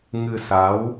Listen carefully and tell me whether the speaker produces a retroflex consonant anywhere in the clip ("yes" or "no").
no